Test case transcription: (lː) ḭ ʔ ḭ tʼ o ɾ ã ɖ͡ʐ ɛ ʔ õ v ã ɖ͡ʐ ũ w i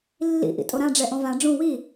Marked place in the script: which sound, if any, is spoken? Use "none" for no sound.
lː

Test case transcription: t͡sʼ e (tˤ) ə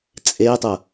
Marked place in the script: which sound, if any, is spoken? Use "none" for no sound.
tˤ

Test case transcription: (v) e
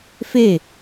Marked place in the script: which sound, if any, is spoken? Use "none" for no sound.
f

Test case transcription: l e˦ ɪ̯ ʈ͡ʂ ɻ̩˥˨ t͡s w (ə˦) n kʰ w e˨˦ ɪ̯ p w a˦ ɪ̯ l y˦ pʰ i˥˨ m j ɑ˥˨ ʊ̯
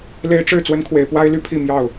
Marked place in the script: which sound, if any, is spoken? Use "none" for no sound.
ə˦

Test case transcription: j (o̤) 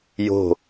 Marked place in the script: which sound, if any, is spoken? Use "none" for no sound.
o̤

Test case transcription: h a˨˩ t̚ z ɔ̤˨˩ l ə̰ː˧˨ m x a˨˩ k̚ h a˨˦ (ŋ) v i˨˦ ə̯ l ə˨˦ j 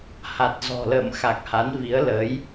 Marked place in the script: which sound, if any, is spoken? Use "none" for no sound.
n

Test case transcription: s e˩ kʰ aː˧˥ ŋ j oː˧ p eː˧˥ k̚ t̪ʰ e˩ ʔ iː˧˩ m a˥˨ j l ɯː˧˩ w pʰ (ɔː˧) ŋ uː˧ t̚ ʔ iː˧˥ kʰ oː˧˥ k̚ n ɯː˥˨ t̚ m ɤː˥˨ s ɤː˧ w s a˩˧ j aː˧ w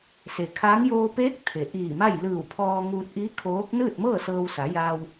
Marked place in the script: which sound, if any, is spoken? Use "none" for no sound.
ɔː˧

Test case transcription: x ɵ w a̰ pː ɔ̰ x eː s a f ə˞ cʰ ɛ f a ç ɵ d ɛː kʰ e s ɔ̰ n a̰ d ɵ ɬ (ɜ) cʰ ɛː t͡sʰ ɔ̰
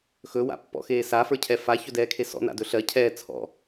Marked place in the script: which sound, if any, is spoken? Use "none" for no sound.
ɜ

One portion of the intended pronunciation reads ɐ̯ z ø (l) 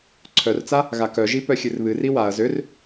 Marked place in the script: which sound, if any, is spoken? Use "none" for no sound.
r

